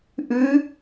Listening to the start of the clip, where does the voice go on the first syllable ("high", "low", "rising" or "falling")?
rising